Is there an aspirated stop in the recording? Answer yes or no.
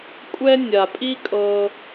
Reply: no